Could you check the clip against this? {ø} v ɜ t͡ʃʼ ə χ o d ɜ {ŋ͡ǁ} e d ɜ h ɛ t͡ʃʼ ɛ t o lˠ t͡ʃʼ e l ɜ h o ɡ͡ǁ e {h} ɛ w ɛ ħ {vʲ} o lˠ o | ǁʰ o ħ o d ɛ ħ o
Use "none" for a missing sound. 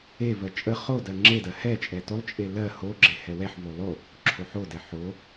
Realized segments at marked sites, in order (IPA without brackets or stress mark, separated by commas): e, ŋ͡ǁ, h, v